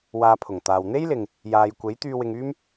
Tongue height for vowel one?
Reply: low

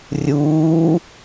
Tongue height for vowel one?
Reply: high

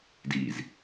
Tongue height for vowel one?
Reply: high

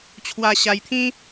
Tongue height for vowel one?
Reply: low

